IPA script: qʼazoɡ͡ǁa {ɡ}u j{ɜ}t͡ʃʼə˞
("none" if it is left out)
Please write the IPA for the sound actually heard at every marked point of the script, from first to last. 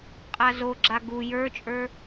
ɡ, ə˞

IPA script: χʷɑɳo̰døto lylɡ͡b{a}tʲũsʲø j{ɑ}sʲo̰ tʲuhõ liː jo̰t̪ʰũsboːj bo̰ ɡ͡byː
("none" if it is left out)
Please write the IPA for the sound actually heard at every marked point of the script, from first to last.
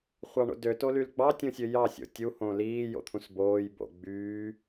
ɑ, ɑ

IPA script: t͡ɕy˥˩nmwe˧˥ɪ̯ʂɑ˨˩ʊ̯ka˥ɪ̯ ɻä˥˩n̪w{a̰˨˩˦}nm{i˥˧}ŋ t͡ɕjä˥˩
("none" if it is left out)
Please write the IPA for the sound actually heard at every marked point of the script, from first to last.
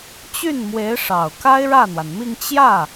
a˩, i˥˧

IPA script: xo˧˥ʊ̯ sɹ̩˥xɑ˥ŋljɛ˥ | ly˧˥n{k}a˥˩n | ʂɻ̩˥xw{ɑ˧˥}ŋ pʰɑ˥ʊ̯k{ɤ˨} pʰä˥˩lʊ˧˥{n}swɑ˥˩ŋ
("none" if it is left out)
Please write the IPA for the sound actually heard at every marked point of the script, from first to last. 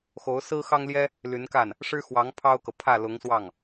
k, ɑ˧˥, ɤ˨, ŋ

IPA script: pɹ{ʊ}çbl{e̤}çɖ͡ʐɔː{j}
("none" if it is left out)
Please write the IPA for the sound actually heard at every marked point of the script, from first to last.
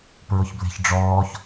ʊ, e̤, ç

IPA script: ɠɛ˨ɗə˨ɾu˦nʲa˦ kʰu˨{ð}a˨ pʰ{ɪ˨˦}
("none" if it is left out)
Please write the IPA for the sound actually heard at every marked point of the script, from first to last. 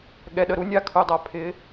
dˤ, ɪ˨˦

